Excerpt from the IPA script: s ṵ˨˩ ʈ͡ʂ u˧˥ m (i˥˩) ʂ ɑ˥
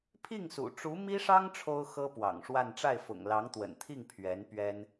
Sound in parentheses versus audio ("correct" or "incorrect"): incorrect